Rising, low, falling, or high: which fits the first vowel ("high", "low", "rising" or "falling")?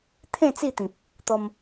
falling